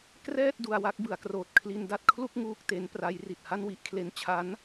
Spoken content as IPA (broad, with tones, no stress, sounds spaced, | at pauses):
k r ɛː˥˩ t̚ d u˧ a̯ w a˦˥ k̚ b ɯ˩˦ a̯ k r oː˨˩ t̚ kʰ l i˧ n d a˥˩ t̚ kʰ l u˥˩ k̚ ŋ uː˥˩ k̚ t e˦˥ n p r a˦˥ j r i˨˩ t̚ h a˥˩ n w i˦˥ ʔ kʰ l e˧ n t͡ɕʰ a˦˥ n